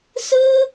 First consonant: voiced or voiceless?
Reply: voiceless